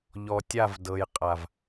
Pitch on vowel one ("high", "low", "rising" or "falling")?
low